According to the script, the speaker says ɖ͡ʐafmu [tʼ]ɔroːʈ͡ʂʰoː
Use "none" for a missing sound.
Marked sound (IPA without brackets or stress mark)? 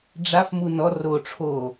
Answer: n